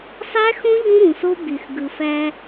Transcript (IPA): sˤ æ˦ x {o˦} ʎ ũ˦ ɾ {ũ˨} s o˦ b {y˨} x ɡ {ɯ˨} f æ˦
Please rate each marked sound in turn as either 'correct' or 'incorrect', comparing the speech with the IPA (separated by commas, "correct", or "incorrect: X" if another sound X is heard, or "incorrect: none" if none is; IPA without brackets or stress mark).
incorrect: õ˦, correct, correct, correct